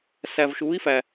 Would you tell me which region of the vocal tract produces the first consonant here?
tongue tip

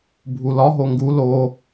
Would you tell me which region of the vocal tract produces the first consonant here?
lips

